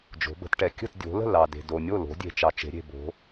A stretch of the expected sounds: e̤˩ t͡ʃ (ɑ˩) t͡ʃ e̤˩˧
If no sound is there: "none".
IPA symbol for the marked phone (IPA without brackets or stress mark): ɑ˩